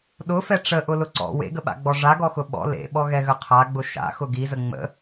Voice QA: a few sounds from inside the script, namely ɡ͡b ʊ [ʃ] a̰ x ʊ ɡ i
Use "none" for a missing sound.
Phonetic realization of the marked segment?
ʃ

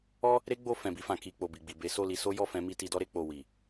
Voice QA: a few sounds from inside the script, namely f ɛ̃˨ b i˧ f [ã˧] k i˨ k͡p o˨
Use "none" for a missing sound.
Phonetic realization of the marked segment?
ã˨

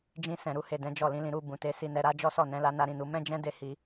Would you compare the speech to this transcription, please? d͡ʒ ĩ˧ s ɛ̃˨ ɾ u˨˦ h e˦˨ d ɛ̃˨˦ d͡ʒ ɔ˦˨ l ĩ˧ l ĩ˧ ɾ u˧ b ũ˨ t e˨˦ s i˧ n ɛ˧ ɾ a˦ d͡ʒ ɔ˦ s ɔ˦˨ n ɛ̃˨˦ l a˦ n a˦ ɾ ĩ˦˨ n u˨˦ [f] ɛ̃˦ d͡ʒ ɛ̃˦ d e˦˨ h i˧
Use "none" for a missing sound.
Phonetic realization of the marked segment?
m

